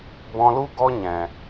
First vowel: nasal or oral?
nasal